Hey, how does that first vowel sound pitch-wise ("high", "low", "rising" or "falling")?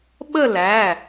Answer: falling